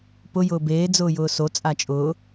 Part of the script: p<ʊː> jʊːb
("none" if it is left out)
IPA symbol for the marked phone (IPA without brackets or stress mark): ʊ